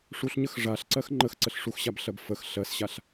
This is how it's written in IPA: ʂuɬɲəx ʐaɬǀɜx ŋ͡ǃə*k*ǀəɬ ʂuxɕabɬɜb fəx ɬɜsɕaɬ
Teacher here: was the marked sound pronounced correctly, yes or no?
no